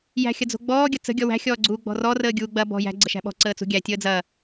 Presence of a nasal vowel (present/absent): absent